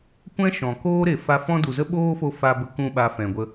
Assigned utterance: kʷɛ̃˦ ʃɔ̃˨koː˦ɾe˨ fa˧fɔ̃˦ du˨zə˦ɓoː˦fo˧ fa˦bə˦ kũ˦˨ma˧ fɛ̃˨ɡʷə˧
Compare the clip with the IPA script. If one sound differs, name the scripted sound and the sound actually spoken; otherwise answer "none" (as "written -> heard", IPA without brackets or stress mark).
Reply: m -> ɓ